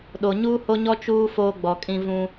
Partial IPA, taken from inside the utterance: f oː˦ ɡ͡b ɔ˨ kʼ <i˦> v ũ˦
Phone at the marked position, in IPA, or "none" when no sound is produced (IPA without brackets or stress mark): ĩ˦